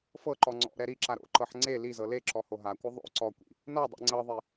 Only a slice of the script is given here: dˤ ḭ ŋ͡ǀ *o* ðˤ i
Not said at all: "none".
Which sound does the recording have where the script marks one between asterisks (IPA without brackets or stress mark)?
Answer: ɤ